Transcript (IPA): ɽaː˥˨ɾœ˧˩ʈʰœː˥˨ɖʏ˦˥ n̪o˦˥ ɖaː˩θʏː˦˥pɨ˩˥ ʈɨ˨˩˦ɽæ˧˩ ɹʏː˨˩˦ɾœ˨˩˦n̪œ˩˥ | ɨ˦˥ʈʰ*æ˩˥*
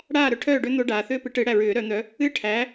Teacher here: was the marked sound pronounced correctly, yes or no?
yes